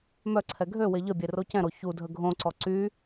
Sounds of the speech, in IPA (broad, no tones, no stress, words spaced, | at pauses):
mœǀʰɛ ɡʱø weʎəbʲe rocɛ̃ɾo çudʱə ɡʱõǀɔ ǀy